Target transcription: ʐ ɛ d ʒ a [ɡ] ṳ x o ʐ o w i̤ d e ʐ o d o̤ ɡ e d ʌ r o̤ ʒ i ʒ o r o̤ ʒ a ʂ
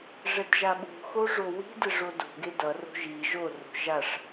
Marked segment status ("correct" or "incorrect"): incorrect